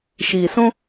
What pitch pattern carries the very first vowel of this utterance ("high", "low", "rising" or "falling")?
low